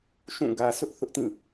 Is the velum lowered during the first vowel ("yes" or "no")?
yes